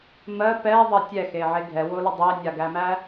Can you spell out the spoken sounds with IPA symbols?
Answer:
m ɜ p ɛ ðˤ ɜ tʲ ɛ x e ʕ e ɡʱ ɛ w o l ə dˤ e nʲ a ɡ æ m æ

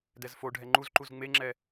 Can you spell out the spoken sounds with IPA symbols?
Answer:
d ɛ z f o ɖʱ ɛ ŋ͡ǃ u z ǃ u z ŋ͡m e ŋ͡ǁ ɛ

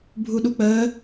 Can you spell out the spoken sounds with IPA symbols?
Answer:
bʱ u ɗ u k͡p əː

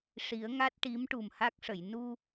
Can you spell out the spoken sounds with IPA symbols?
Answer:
ʂ i˨˩˦ ə̯ ŋ a˦˥ t̚ ʈ i˧˥ m ʈ u˨˩ m h a˦˥ k̚ ʂ ə˨˩˨ j n u˧

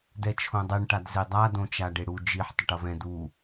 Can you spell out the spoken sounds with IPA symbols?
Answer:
d ɛ t͡ʃʰ õ dˤ ɛ ɳ ʈ a d z e dˤ a d õ t͡ʃ a ɖ e ɽ u d͡ʒ i ħ tˤ ʌ ʈ ʌ v ɛ̃ d u

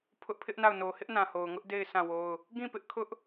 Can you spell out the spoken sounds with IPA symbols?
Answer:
pʰ ʊ˦ ʔ pʰ ɪ˦ ʔ n a˦˨ ʊ̯ n o˨ h ɪ˦ ʔ n ã˨ h o˨ ʊ̯ ŋ ʊ˦ ʔ d e˦˨ ɪ̯ sʰ ã˦˨ w o˦ ʊ̯ | ɡ ĩ˦˨ p ɪ˦ ʔ kʰ ʊ˦ ʔ

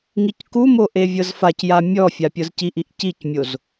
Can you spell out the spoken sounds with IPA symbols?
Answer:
ŋ i c k u m o ʔ e vʲ ɤ z f a c j a mʲ ɔ fʲ a pʲ ɤ z c i ʔ i ʔ c i c mʲ o z

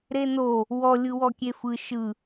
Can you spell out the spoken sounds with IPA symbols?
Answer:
ɾ e n o | w ɔ lʲ ɯ w ɔ kʲ e f ɯ ʃ ɯ

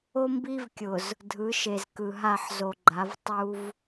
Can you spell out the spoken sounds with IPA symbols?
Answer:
o˦ m b i˦ v kʲ ʊ˨ z | dʱ ɯ˨˦ ʃ e˨ z k ɯ˨ ɦ a˦˨ ħ z o˨ ɡ͡ǃ a˨˦ v tˤ u˦ v

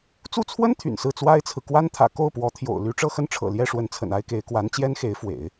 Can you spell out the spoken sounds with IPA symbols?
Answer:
t͡s u˥˩ t͡sʰ w ə˥ n t̪ʰ y̰˨˩ n s ɹ̩˥˩ t͡s w a˥ ɪ̯ t͡sʰ ɹ̩˨ k w a˥ n t̪ʰ ä̰˨˩ k o˥˩ ʊ̯ p w ɔ˧˥ t̪ʰ j o̰˨˩ ʊ̯ l y˧˥ ʈ͡ʂ ɤ˥˧ x ə˥˩ n ʈ͡ʂʰ ɤ̰˨˩ l j ɛ˥˩ ʂ w ə˧˥ n t͡sʰ ə̰˨˩ n a˥ ɪ̯ k e˧˥ ɪ̯ k w a˧˥ n t͡ɕ j ɛ˥ n x e˧˥ ɪ̯ f w ḛ˨˩˦ ɪ̯

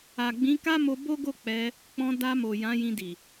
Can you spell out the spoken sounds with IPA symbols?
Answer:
a˨ ɡ͡b ĩ˨˦ k a˦ m o˧ b o˦ ɡ o˦˨ k͡p ɛ˧ | k͡p ɔ̃˧ d a˧ m o˨ j ã˨˦ j ĩ˧ d i˨

